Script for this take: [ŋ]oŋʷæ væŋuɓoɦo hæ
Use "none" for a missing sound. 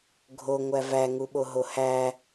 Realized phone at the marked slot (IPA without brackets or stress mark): ɡʱ